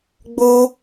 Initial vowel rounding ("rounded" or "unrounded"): rounded